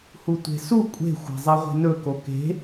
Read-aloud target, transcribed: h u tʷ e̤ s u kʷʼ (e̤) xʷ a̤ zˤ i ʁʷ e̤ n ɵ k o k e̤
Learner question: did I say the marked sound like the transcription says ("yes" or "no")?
yes